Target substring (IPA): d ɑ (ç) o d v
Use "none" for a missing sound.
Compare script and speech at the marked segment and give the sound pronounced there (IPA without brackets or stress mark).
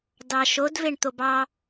ʃ